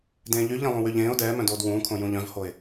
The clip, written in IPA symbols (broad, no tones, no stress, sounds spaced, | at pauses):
d ẽː ʎ y ʎ ẽ lˠ õ w y ʎ ẽː ʊ̯ d ɛː m œ̃ d oː d w ũː kʰ õ j ũ ʎ œ̃ v h o ɪ̯